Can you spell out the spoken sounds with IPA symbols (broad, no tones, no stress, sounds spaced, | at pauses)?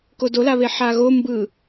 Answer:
k o d o l a β e ħ a ɣ o m b ɯ